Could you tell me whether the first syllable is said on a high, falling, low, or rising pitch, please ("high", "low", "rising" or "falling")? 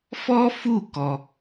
high